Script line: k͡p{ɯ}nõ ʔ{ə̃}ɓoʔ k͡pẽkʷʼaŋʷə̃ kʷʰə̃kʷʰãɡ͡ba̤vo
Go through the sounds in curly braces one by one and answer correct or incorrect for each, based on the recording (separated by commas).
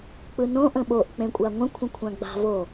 correct, correct